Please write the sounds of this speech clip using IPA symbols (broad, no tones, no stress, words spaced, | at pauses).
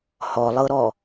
hɔlˠɤɾɔ